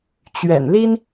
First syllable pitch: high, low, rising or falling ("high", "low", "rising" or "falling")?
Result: low